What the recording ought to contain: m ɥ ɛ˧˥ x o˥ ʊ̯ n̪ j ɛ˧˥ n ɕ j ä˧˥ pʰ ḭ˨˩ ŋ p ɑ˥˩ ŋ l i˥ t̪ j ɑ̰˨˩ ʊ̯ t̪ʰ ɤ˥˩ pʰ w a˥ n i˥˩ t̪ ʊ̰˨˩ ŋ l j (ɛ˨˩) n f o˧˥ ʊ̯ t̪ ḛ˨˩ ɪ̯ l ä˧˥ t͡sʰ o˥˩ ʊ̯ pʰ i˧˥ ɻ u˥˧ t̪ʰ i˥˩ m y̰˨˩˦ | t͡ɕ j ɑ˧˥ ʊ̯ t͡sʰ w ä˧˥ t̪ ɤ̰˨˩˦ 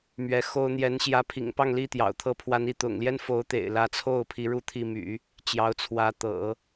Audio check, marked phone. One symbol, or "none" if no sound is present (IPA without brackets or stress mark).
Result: ɛ˥